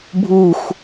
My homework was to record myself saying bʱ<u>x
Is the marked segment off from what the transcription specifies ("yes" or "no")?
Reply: no